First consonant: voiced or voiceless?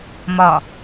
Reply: voiced